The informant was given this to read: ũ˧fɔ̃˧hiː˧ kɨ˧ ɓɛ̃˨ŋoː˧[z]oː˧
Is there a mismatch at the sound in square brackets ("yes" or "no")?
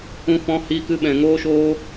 yes